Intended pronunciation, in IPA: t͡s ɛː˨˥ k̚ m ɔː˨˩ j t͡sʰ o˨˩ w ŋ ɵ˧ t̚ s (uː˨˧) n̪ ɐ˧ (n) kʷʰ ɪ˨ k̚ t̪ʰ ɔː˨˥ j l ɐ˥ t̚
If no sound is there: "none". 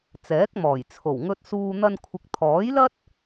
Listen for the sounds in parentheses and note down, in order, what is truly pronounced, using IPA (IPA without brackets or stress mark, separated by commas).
uː˧, n